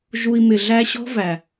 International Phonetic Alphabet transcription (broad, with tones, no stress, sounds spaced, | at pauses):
ʒ u˧ i̯ m ɪ˨ ɮ æ˦ ɕ ɔ̤˦ v æ˨